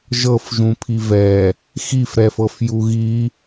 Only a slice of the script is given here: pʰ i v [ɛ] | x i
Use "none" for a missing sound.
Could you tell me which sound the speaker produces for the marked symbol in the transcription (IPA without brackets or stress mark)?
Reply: ɛ